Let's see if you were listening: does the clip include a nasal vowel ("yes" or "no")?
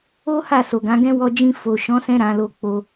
yes